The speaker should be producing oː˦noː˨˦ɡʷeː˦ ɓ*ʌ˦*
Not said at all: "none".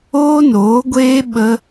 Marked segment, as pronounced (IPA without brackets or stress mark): ə˦